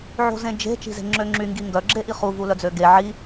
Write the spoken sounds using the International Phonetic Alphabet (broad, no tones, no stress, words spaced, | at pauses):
ʕo̤zẽd͡ʒe̤ t͡ʃi̤ze̤ŋ͡ǁøŋ͡ǁy ŋɡiŋɡœ ɡ͡ǁeʔiχu vulœd͡zøɡe ʕi